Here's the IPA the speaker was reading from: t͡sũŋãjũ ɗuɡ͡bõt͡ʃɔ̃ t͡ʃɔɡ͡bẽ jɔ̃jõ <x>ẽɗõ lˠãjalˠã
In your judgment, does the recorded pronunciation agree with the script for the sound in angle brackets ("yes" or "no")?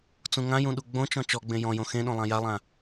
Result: yes